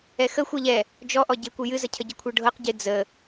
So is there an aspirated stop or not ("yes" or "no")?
yes